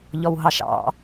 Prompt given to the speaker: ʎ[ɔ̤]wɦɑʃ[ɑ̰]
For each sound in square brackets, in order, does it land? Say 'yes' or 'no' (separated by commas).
no, yes